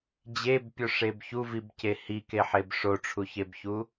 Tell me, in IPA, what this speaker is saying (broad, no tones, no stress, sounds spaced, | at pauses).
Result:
d͡ʑ e b pʲ o ʂ e b ç u v i b c e h i k e ħ e b ʂ o ʈ͡ʂʰ u ç e b ç u